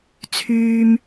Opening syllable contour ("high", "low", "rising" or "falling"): low